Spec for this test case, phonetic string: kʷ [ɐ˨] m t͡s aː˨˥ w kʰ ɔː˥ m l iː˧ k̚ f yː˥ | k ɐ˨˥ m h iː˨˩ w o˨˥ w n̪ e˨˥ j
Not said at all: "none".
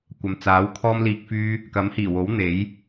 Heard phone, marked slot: ɐ˨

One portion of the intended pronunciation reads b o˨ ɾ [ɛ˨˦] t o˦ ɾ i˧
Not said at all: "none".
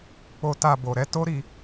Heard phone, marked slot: ɛ˨˦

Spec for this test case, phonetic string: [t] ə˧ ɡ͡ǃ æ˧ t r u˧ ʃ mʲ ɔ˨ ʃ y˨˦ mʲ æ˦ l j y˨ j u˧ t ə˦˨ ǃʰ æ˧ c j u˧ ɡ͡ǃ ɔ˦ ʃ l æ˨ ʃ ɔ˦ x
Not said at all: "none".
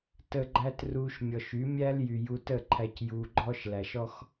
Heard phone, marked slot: t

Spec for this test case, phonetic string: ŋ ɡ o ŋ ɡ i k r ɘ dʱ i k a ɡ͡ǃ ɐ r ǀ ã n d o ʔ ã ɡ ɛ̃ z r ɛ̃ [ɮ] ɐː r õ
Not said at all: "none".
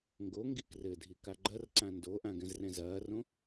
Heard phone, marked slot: z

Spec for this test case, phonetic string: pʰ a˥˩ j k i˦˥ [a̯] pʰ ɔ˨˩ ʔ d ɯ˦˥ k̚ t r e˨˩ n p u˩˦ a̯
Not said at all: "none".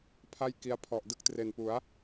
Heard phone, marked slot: a̯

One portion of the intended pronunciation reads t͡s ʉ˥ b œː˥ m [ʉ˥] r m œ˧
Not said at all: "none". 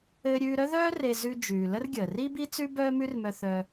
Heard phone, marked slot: ʉ˥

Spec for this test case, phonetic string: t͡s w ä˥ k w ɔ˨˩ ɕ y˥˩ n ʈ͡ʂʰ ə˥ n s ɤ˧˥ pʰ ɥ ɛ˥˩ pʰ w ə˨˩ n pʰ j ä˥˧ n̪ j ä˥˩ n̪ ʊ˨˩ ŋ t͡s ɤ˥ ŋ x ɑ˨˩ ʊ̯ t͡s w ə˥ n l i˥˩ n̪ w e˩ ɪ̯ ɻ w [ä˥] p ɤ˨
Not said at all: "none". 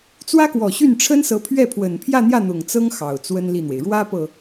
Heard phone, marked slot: ä˥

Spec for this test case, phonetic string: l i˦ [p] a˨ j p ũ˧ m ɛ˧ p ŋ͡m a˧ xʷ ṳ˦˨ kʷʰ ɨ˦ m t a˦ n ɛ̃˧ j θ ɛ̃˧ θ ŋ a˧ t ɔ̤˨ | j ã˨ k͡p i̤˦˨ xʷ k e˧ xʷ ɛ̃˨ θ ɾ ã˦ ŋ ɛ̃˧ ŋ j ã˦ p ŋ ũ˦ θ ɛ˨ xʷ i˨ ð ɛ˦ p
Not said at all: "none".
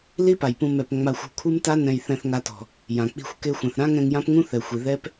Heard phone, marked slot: p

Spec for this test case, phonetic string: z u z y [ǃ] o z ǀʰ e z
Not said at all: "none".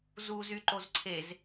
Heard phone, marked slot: ǃ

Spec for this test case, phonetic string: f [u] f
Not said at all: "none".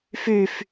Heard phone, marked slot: y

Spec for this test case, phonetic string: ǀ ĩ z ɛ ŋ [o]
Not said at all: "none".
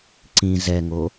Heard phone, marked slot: o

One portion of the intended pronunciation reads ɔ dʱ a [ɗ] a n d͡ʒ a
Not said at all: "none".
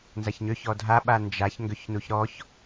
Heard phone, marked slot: ɓ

